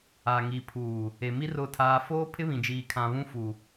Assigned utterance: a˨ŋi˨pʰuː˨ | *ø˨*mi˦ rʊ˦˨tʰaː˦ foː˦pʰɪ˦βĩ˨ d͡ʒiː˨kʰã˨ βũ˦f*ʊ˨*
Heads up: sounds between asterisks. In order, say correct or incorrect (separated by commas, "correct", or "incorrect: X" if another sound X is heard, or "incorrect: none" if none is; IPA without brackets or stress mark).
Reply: incorrect: e˨, incorrect: u˨